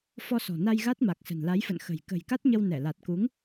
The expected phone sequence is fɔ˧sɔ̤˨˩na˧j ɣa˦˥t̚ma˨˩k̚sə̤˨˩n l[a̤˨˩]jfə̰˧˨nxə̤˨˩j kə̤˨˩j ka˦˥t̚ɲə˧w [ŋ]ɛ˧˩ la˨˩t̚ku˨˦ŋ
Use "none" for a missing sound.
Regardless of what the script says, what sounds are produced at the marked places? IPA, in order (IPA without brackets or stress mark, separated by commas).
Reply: a˨˦, n